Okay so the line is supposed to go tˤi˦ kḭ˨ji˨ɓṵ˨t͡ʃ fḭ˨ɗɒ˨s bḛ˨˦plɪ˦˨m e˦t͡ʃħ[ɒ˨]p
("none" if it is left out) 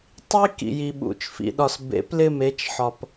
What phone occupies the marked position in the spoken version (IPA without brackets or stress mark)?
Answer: ɒ˨